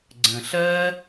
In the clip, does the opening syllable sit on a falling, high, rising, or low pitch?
low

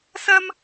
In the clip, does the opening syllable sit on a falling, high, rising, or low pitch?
high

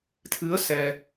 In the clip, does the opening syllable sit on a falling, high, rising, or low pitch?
rising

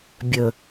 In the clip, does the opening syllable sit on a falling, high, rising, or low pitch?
low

